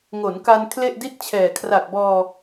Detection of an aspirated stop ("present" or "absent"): present